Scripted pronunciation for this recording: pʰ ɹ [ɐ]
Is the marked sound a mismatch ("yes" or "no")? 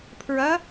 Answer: no